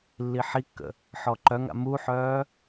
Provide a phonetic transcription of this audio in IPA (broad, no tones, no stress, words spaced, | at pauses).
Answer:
lːiħikːə̰ | ħɔǃœŋa̰ muħœː